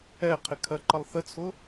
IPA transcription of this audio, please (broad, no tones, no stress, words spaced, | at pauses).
ɛqʰɪkʰɜǃʌlˠ θət͡sʰʊ